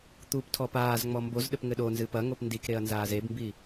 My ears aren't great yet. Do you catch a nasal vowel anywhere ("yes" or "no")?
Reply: no